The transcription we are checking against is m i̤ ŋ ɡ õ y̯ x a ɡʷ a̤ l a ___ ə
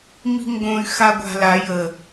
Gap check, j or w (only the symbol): j